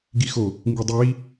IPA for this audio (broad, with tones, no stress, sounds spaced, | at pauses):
ɡ i˨ x o˨ | ŋ ɡ i˨ dˤ i˨ w i˦